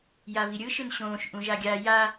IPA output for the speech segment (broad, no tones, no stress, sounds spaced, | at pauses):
j a v i ɾʲ ɯ ʃ ɯ n ɕ õː ʃ ʔ ũ ʒ a ɡʲ a j a